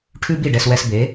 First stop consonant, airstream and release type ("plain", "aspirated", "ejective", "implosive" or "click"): aspirated